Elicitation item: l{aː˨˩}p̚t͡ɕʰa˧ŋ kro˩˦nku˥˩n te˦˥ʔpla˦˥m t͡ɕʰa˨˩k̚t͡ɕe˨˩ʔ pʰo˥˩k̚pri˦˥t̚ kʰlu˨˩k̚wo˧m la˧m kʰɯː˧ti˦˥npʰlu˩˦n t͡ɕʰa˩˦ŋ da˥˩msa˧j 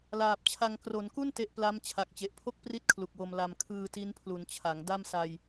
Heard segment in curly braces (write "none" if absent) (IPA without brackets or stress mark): aː˨˩